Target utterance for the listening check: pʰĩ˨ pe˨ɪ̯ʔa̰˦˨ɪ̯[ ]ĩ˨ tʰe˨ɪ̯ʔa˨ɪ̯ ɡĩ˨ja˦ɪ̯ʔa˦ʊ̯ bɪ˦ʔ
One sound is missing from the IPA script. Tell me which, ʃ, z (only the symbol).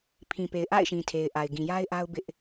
ʃ